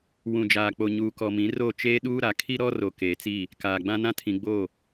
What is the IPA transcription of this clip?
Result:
w ũ˨ d͡ʒ aː˨ k͡p o˨ ɲ uː˨ k ɔ˨ m ĩ˨˦ r o˦˨ t͡ʃ eː˦ ɗ uː˦ ɾ a˨ kʰ i˦ ɾ ɔ˦ r o˨ k eː˨ t͡s i˦˨ | k aː˨ ɡ͡b ã˦ n ã˦ tʰ ĩ˨ ɡ͡b o˦˨

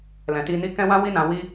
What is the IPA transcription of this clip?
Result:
l ɛ̃˨ t i˧ n i˦ k ɛ̃˦ w ã˦ w i˦ n ã˧ w i˦

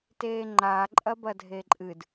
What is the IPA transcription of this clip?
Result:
t eː ŋ͡ǃ a ǃʼ ɐ b ɐ dʱ e ǃʼ ɨ d

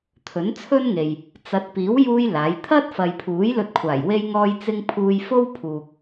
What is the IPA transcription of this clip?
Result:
t̪ʰ ɵ˨˥ n t͡sʰ ɵ˥ n ŋ e˨ j | t͡s ɐ˨˥ t̚ p iː˨˥ w j uː˥ j l aː˨˥ j t̪ʰ ɐ˥ t̚ f ɐ˨ j pʰ uː˨˥ j l ɵ˧ t̚ kʷʰ aː˨˩ j w e˧ j ŋ ɔː˧ j t͡s ɪ˥ ŋ pʰ uː˧ j f o˥ w pʰ uː˨ k̚

